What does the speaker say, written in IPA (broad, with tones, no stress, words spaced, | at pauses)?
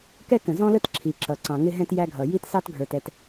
kɛ˦kə̃˨ zɔ̃˦lə˦t ǁʰi˨ǁʌ˨ ǀɑ̃˨ŋɪ˦ɦɛ̃˦t jæ˦ɡʱʌ˨ ji˦tsɑ˦tɡʱə˞˨tɛ˨t